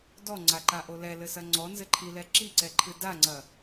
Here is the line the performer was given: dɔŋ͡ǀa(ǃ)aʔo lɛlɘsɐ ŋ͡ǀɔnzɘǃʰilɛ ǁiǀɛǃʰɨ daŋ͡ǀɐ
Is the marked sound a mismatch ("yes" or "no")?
no